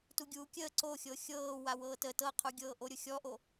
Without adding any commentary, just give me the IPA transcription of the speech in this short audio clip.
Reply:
tuɡʲuːkʲəː ǀoxʲɤ xʲɤː wawɤːtə tɤqʰuɡʲɤː ʔoɾʲʊxʲɔʔo

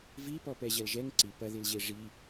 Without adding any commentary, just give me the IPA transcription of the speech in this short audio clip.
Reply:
vipɔ pɛʑɐlʒɛŋ ǀi pɐðilʑe ʐi

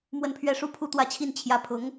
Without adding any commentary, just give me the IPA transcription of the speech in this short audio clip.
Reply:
mwə˥˧npʰɥɛ˥˩ʂu˥ pʰu˥˧t̪wä˥˧t͡ɕʰi˥˩n t͡ɕʰjä˧˥pʰʊ˧˥ŋ

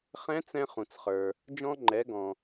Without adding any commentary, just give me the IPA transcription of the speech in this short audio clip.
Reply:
χɛ̃˧˥t͡sɛ̃˧ χũ˩t͡sχə˞˩ | d͡ʒɔ̃˧ŋ͡ǃɛ˩˧ ɡɔ̃˩

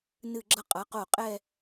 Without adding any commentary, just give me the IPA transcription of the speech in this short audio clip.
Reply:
nɨ˧˩ɡ͡ǁʌ˧ qʼʌ˩˧qo˧˩ qʼɛ˥˧

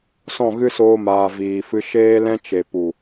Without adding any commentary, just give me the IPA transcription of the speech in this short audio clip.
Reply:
sɔ̃˦˨ɣɨ˦soː˧maː˨ viː˨fɨ˧ ʃeː˦lɛ̃˦t͡ʃe˨ pu˨

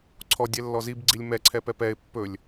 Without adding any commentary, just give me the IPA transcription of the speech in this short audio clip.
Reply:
ǀʰɔdʲɛ lːɔzib ɡ͡ǀilʲmɛ ǀʰɛpɛpɛɪ̯ pːɵlʲ

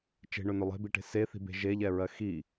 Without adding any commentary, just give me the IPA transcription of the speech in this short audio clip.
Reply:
t͡ʃe̤ɳɵnɵ lˠe̤biʈe̤ seθi̤be̤ ʒeʎɛɹɜ xi

